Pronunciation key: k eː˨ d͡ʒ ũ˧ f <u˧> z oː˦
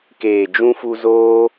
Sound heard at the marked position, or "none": u˧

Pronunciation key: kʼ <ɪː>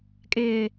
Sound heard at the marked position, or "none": ɪː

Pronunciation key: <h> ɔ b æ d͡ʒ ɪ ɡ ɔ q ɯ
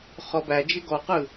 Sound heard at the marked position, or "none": χ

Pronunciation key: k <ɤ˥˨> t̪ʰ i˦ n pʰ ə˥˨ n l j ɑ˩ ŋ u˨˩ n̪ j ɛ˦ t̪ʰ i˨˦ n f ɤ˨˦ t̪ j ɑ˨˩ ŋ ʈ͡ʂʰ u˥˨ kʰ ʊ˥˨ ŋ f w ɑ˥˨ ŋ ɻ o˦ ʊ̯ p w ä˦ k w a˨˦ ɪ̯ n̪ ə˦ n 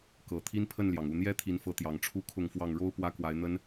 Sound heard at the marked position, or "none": ɤ˨˩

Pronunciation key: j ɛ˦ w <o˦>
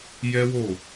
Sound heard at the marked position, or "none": o˦˨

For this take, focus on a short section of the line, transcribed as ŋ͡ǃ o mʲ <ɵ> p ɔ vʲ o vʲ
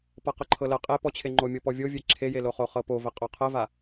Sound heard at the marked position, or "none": ɤ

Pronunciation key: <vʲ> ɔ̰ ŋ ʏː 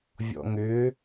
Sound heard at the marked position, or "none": vʲ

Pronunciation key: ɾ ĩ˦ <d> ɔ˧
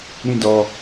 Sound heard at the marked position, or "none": d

